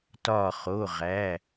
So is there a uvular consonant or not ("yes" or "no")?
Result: yes